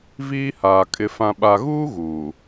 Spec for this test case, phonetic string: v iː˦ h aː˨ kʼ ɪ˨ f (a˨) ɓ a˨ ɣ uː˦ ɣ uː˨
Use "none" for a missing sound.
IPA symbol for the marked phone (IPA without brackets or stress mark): ã˨